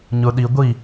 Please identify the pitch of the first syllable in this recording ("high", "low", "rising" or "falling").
low